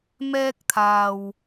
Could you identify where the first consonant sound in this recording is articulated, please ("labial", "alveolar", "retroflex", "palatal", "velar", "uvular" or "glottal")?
labial